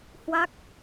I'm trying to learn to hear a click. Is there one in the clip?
no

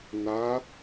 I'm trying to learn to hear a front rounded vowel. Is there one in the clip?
no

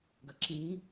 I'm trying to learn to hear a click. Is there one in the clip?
yes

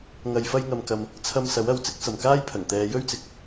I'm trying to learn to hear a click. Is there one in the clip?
no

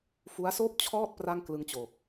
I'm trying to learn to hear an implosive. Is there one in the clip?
no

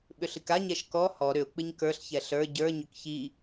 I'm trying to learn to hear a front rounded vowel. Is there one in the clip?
yes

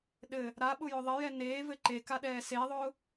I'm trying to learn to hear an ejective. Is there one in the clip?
no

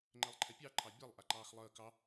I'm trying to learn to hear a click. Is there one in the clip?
yes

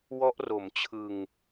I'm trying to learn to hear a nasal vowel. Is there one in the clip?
no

